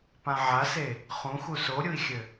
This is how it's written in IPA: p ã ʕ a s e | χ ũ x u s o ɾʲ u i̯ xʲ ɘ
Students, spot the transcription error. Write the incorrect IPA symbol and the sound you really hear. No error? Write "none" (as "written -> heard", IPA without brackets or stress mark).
none